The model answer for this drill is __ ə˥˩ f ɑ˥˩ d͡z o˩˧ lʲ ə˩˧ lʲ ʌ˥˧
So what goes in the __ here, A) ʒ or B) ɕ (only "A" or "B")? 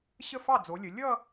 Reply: B